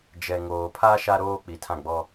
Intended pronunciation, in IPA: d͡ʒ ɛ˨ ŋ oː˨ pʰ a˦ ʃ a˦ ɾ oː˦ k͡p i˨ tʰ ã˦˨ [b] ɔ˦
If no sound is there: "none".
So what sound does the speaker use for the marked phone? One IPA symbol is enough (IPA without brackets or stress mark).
ɡ͡b